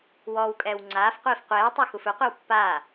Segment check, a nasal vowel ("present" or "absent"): absent